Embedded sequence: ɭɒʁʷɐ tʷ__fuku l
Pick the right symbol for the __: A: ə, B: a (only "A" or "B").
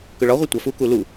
B